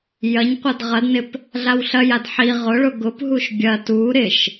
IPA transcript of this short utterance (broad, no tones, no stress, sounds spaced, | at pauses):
j ɐ ɲ qʷ ɐ d ʁ ɐ d n ɪ p | ɮ a w ɬ ɐ j a d ħ i ʁ ʊ ɭ ʊ ɡ ʊ p ɦ u ʃ bʲ ɐ t u ɾ ɪ ʃ